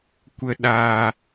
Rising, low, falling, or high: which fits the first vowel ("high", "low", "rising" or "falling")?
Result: low